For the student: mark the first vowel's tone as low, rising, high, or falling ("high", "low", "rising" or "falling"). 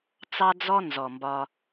high